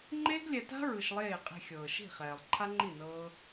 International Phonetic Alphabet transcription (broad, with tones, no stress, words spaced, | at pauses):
ŋ͡ǃeː˦ɡlʲɛ˧ta̤˦ ɹɯ˧ʃlˠeː˦˨ qʼi̤˧xʲɤː˨ʃi̤˦˨ χɛː˨lˠǃʰa˦ŋ͡ǃi˦˨ nɤː˦